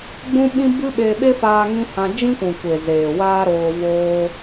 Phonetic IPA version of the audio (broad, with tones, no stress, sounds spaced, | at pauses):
ɡ͡b ũ˦ ɓ ĩ˦ b ɨ˦ ɓ e˧ ɓ e˦ f aː˧ ŋ ĩ˦ h ã˧ d͡ʒ ĩ˦ kʷ ũ˨ kʷ e˨ z eː˨ w aː˦ ɾ oː˧ v oː˧